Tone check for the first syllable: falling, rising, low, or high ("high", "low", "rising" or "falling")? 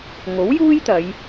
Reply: rising